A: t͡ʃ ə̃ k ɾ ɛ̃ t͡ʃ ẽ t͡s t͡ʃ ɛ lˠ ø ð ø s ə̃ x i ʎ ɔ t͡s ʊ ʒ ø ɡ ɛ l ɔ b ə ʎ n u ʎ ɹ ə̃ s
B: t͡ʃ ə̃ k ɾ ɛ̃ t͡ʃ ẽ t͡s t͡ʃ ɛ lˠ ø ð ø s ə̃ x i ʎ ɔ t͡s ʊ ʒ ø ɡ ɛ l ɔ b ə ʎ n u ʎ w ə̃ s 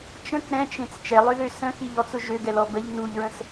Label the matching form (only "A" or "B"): A